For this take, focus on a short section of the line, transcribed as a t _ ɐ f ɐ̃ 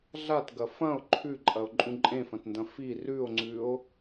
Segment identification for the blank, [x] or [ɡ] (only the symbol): ɡ